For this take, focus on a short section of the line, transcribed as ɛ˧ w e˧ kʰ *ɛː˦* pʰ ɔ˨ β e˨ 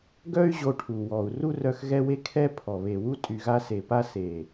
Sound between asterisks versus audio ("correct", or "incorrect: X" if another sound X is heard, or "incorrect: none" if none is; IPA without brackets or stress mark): incorrect: ɛ˦